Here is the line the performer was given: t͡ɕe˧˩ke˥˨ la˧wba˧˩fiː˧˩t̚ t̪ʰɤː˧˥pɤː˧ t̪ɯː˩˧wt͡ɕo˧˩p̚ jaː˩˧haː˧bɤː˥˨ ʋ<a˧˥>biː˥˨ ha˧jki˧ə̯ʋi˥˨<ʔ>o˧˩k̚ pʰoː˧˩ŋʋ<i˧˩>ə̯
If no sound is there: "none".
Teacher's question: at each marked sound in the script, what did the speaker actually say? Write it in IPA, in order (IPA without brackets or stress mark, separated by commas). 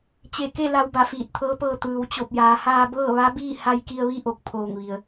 a˧˥, ʔ, i˩